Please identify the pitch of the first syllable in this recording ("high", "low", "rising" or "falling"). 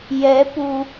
rising